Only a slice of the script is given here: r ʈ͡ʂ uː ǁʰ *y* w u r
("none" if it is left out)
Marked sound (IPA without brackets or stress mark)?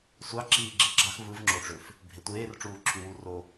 y